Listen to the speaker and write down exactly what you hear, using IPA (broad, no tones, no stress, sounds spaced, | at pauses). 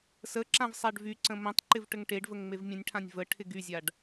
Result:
s ə ǁ ã v sˤ a ɖ v y ǀ ə̃ m ə̃ tˤ ǃ ɪ v ʈ ə ŋ ʈ e ɖ v ə ŋ ŋ͡m e v mʲ ə̃ nʲ ʈʰ ã nʲ v ə ʈʰ ɪ ɡ y zʲ a ɖ